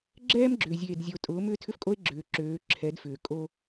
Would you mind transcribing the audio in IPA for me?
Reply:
ɡ͡ǁ ɛː˦ m ɡ͡ǁ ʏː˨ zʲ eː˨ d zʲ o˨ tʼ ʊː˨˦ m ʏː˦ tʰ ʏ˦ f kʼ o˦ e̯ ɡ͡ǁ ʏː˨ ǁ øː˨˦ ǁʰ ɛ˨˦ d f ʏː˨ kʼ o˦

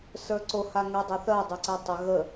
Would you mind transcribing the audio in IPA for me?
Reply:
s ə˞ ǀ o h a ŋ ɛ dˤ ɛ θ ɜ dˤ ʏ ǀ ɛ tˤ ʏ ɣ ə

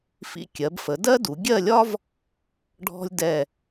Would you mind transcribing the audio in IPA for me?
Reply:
f ḭ˧ kʲ ɜ˩˧ b f ə˩˧ d ɜ˥ d u˩˧ ɡʲ ɜ˥˧ lʲ ɒ˥ v | ɖʱ ɔ̤˧ lʲ d ɛ˧˩

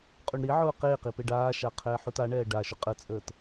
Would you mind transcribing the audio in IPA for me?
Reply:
qʼ u ɳ ɾ i ʕ ʊː q eː q i p e ɖ aː ʃ a qʰ ɛː ħ u t a ɳ ɛː ɖ a ʃ ʊ qʼ ə t͡sʼ əː t

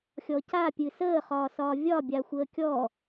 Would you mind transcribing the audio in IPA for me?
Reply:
xʲ ɔ c a pʲ ɨ s əː χ ɒː s ɒː vʲ ɒ bʲ a xʷ əː kʲ ɔ

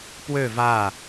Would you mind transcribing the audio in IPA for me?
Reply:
p w ø v a

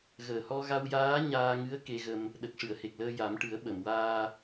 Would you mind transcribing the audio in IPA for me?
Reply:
ɣ əː˨˩ h ɔ˧ ɣ a˧ w j aː˧˥ ɲ aː˧ ŋ ɨ˧˥ ə̯ k e˧ ɣ ə˧ m | ɗ ə˨˩ k̚ ʂ ɨ˨˩˨ ə̯ h e˨˩ k̚ l əː˧ j a˨˩˦ m ʈ ɨ˨˩˦ ə̯ ɓ ə˨˩˨ m w aː˧

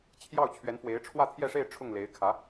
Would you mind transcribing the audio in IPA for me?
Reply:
t͡ɕʰ j ɑ˥˩ ʊ̯ t͡ɕʰ ɥ ɛ˧˥ n f w e˧˥ ɪ̯ ʈ͡ʂʰ w ä˥˧ t̪ʰ j ɛ˥˧ ʂ e˥˧ ɪ̯ ʈ͡ʂʰ ʊ˥˩ ŋ l e˧˥ ɪ̯ kʰ ä˧˥

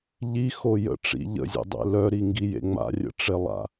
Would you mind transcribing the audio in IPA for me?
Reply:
ʎ i x o j ə̰ ʈ͡ʂ ḭ ʎ ə̰ zʲ ḛ dˤ ḛ l œ ɾ i ŋ ɡ i j ḛ ŋ͡m a̰ rʲ ə̰ ʈ͡ʂ e lˠ a̰

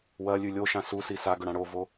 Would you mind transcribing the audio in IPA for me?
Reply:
w ɐ lʲ ʉ lʲ o ʃ ã s u s i s a ɡ ɵ ɽ ã ɽ o v o

